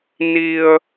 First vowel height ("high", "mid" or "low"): high